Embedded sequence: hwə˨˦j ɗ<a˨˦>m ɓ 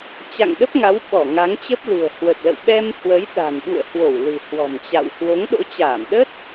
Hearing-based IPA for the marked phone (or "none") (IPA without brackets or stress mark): a̤˨˩